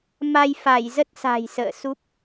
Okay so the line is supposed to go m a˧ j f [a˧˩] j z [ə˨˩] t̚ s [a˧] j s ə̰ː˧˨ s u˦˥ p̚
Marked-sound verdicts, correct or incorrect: correct, incorrect: ə˦˥, incorrect: a̤˨˩

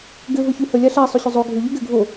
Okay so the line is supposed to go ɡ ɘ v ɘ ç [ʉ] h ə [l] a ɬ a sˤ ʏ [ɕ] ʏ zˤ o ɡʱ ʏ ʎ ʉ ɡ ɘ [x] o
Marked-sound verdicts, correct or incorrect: correct, incorrect: lʲ, correct, incorrect: ɡʱ

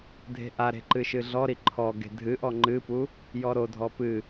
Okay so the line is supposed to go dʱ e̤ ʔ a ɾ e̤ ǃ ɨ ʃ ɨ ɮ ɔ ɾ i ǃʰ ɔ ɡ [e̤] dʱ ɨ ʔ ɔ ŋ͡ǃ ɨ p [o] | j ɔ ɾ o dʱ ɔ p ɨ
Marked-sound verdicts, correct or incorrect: correct, incorrect: u

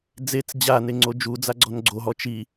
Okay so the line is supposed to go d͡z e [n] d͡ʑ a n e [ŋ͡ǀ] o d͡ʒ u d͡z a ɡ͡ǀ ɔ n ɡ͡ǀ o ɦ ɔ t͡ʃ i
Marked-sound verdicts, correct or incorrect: incorrect: t͡s, correct

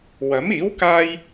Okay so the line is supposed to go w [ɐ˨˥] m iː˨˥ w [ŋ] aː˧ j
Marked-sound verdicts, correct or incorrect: correct, incorrect: k

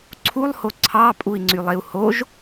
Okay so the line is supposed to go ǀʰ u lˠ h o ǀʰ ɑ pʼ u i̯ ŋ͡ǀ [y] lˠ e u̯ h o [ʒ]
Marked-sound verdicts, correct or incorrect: correct, correct

